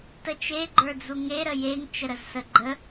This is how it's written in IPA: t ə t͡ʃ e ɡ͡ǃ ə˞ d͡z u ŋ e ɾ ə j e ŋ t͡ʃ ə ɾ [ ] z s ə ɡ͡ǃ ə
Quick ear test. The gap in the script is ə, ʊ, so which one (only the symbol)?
ə